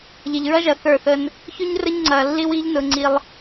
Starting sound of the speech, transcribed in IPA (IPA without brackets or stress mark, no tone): ʎ